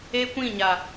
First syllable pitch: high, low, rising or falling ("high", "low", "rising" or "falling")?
high